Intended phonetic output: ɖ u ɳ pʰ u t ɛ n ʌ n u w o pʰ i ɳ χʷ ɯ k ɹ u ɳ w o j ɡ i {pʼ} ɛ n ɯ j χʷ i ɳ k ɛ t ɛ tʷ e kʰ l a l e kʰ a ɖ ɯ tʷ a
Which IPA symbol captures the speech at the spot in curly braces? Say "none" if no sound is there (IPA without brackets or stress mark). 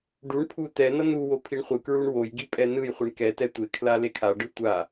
pʼ